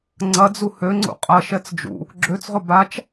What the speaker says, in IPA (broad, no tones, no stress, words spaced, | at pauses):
ŋ͡ǀɐd͡zu hø ŋ͡ǀṵqʼɐʃɛt͡s d͡ʒṵ | ɡ͡ǁøt͡sʁʊ bat͡ʃ